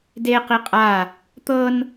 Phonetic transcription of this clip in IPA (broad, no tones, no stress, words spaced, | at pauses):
de qiqʼa | t̪ɤn